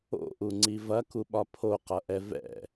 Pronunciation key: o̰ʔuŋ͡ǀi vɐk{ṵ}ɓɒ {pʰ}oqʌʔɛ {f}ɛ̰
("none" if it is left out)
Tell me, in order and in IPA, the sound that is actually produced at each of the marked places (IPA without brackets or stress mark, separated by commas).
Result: u, pʰ, v